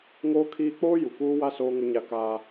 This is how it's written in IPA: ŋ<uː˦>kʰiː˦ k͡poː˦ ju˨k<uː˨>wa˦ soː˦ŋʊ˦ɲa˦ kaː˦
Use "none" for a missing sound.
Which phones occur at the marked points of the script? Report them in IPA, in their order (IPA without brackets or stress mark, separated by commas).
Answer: oː˦, uː˦